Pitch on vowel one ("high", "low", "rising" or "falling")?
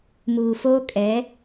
low